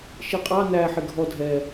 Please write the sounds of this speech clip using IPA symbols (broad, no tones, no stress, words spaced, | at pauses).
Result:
ʃiqʼɑ næħɪ ɡʱɔ dʱɛ